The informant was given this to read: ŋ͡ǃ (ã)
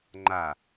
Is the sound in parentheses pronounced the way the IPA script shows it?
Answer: no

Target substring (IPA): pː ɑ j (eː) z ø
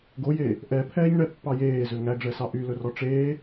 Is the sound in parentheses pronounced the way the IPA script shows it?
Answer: yes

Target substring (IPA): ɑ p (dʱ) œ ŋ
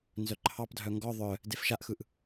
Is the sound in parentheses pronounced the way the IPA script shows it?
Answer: yes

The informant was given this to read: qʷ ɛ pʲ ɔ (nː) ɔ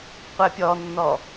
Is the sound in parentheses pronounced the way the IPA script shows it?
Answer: yes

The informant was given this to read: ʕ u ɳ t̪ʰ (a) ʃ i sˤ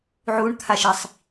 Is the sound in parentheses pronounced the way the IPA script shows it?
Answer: yes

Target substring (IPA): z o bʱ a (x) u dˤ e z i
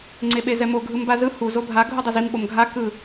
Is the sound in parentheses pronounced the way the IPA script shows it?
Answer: no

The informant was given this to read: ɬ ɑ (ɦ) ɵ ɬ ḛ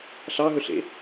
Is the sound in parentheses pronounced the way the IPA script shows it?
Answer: yes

